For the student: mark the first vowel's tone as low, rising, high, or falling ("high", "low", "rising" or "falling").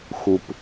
low